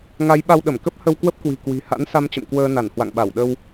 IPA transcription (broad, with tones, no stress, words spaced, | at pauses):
ŋa˨˦jɓa˧w ɗə˧˩mkə˦˥p̚ hə˧wkwə˦˥p̚kwi̤˨˩ kwi̤˨˩ ha̰˧˥nsa˧mt͡ɕə̰˧˨m kwəː˧na˧˩n hwa̰˧˨ŋɓa˧˩wɗə˧w